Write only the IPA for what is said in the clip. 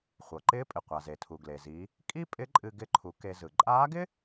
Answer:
χʷ ɤ˩ ǃ ɪː˧˥ pʼ ɪ˩ qʷ a˩ z e˩ tʰ u˩ ɡ l e˩ z i˩˧ | kʼ i˥ pʼ ɪ˧˥ ǃʼ ɨ˧ ɡ ɪ˧˥ ǃʰ u˩˧ k e˧ z ɯ˩ ǃʼ aː˧˥ ɡ ɪ˥

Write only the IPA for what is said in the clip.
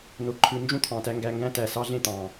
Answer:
n o˧ ǃʰ ɯ˧ n d͡ʒ ũ˦ t̪ʰ ɑ̃˨ t æ˧ ŋ ɡ æ˧ ŋ ɡ æ̃˦ t æ˨ s ɑ˧ ɮ ẽ˦˨ t̪ ɑ̃˨

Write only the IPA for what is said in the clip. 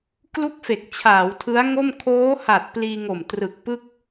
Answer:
k l u˥˩ k̚ f e˨˩ k̚ t͡ɕʰ aː˩˦ w tʰ ɯ˦˥ a̯ ŋ o˥˩ m kʰ oː˦˥ h a˨˩ t̚ p l iː˧ ŋ o˨˩ m t r ɯ˨˩ k̚ p ɯ˥˩ k̚

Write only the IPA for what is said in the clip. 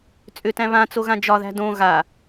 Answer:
t͡sʼ ʏ t æ̃ β ã t͡s o ɣ ã d͡ʒ ɒ ð æ̤ d õ ɣ a

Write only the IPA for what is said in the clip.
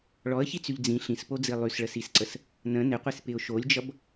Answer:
ɭ ɔ ə̯ ç i t͡s y ʎ d͡z ĩ ɬ ĩ s p o d͡z i lˠ y s ɭ ə s i s ǀ ə s | n ə̃ n ɪ qʷ i s p ɪ ʊ̯ ʃ o lʲ d͡ʒ ʌ b

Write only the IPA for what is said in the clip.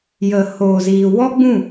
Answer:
j ə˨ h oː˨ z iː˨ w ɔ˦ ɡ͡b ũ˦˨

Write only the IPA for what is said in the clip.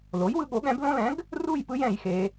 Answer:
l o˩˥ j w ɯ˩˧ ɠ o˩˥ ɠ ɛ̃˩˥ b l õ˦ l ɛ̃˩˥ ɡ | r u˥˨ j p ɯ˦ j ɛ̃˧˩˧ j x e˩˧

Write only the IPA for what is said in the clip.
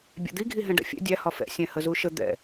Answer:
bʲ ɛ̰ d̪ i ɡʱ i ɦ ɛ̃ ɖ ɛ̰ fʲ ɛ̰ dʲ æ h ɒ f ɛ̰ sʲ ɛ̃ h ə z u ʃ ə d̪ ɛ̰

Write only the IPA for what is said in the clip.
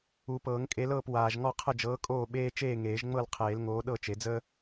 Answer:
u˨˩˦ p ɤː˨˩˦ ŋ kʼ e˨˥ l ɤː˥˨ p w aː˨ ʒ ŋ ɔ˥˨ qʰ ə˥˨ d͡ʒ ɤː˨˥ kʼ oː˥˨ ɓ eː˥ t͡ʃ eː˥˨ ŋ eː˨˩˦ ʒ ŋ͡m ɤ˥˨ l qʰ eː˨˩˦ l ŋ oː˨˥ ɗ ɤ˥˨ t͡ʃ e˨˩˦ d͡z əː˥

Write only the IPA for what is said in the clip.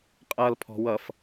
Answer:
qʼ ʌ l pʰ ɔ̤ w ʌ f

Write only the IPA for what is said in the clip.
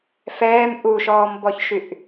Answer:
f ɛː m ʔ u ʃ ɔː m b ɔ ç ʃ y ʔ

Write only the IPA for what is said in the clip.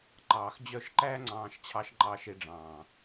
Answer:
ŋ͡ǃ ɑː˨ x d͡ʑ œ˦˨ ʃ ǃ æ˦ ŋ͡ǀ ɑ̃ː˦ ʃ t͡ɕʰ ɑ˦ ʃ ŋ͡ǃ ɑː˦ ʃ e˦ ɖ͡ʐ ɑ̃ː˨

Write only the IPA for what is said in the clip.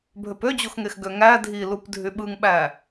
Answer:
bʱ ø p ø d͡ʑ o x ŋ e x ɡ ø ŋ æ dʱ i l u p dʱ y ɓ ɯ ŋ ɓ æ

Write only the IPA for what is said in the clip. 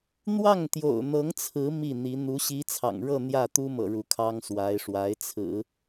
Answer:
n̪ w ɑ˥˩ ŋ t̪ j o̰˨˩ ʊ̯ n̪ ɤ˧˥ ŋ t͡sʰ ɹ̩˧˥ m i˥˩ n̪ i˧˥ n̪ u˧˥ ɕ i˧˥ t͡sʰ ɑ̰˨˩ ŋ ɻ ɤ˥˧ n̪ j ä˥˩ t̪ u˥ m ɤ̰˨˩ ɻ u˧˥ kʰ ɑ˥ ŋ s w a˧˥ ɪ̯ ʂ w a˧˥ ɪ̯ t͡sʰ ɹ̩˨˩˦

